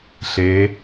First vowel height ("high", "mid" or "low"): mid